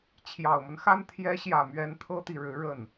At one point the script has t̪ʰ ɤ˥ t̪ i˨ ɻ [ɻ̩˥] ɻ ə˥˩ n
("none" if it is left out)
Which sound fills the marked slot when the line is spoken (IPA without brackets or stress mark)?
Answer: ɻ̩˧˥